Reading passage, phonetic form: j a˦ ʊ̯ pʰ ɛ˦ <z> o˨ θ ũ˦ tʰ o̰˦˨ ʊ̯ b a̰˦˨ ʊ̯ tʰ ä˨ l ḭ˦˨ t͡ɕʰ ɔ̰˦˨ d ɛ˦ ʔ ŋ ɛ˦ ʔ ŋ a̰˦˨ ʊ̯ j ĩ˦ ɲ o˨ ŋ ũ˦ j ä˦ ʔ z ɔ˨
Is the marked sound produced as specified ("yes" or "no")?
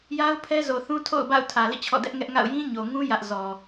yes